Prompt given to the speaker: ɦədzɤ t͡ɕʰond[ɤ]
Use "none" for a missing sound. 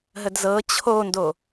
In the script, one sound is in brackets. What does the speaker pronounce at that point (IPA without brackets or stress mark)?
o